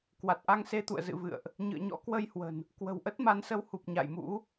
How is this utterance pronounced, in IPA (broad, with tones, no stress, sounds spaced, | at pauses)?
k w a˨˩ t̚ ʔ a˧ ŋ s e˧ t̪ ṵ˧˨ ə̯ z ɨ̰˧˨ v ɨ̰˧˨ ə̯ ʔ | ɲ ɨ̰˧˨ ə̯ ɲ ɔ̰˧˥ k w ə˧ j h w ə̤˨˩ n | k w ə̤˨˩ w ʔ ə˦˥ t̚ m a˨˦ n s ə˨˦ w h u˨˩ p̚ ɲ a̰˧˨ j m ṵ˧˥